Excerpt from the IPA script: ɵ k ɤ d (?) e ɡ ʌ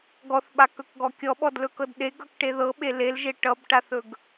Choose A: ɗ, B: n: A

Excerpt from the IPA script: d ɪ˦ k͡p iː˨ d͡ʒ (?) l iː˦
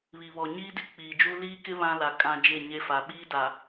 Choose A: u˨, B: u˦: B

